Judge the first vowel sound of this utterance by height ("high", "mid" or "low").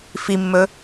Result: high